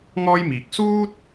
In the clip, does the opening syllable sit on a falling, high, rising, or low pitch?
high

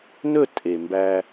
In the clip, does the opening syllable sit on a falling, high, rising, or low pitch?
falling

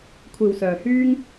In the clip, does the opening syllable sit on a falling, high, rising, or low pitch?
low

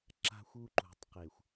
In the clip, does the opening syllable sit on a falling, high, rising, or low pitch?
high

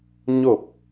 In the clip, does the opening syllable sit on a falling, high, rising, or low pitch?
falling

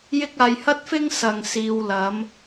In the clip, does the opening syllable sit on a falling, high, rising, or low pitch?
high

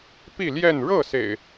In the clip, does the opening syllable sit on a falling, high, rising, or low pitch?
falling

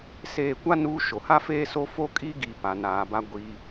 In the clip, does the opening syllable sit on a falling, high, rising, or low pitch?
falling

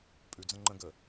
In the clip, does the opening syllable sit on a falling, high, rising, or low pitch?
low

